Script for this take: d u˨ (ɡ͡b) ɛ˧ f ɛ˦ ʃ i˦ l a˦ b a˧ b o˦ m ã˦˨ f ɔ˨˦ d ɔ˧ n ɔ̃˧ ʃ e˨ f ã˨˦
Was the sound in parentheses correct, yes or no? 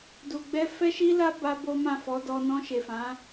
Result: yes